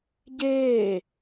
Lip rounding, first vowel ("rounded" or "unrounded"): unrounded